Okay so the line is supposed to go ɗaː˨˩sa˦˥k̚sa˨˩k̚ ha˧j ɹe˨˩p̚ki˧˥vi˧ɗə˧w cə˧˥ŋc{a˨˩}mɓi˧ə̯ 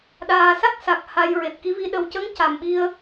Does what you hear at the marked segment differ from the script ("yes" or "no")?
no